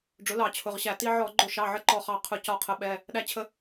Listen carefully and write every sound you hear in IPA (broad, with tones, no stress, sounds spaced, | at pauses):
ɖ͡ʐ ʊ˩˥ l ɑ˧˩˧ t͡ɕʰ ʊ˩˧˩ ʁ ɕ æ˧˩˧ t i˧ ʕ ɔ˧˩˧ ɡ͡ǃ ʊ˧˩˧ ʃ ɑ˩˧˩ ʕ ə˧ ǃ ɔ˧˩ χ ɑ˧˩ qʰ ʊ˧˩˧ c ɒ˧˩ qʰ ə˩˥ ɓ ɛ˩˧˩ | ɗ æ˧ t͡ɕʰ ə˧